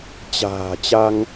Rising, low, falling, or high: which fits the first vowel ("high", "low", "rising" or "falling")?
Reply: low